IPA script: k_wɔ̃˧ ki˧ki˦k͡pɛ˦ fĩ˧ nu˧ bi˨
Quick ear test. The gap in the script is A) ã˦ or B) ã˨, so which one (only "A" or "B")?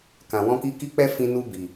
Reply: B